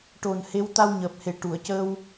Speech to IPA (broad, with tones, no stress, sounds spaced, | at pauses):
ʈ o˨˩ n h e˧˥ w t̪ a˧ w ɲ əː˨˩ p̚ h e˨˩ ʈ u˨˩˨ ə̯ c əː˧ w